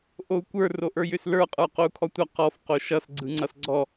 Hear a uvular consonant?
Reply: yes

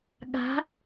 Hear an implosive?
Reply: yes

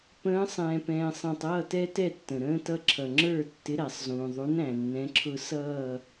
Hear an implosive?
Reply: no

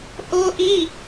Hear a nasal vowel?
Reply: no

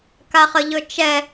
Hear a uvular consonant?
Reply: yes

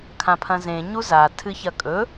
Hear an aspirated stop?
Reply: yes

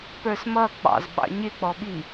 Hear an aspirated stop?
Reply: no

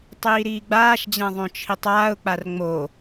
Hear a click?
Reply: no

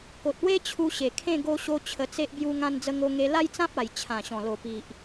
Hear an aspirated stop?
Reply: yes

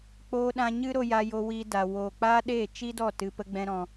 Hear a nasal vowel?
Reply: yes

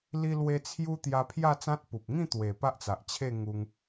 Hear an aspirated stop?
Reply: yes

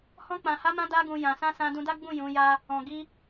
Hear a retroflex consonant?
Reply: no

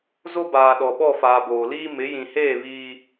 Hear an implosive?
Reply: yes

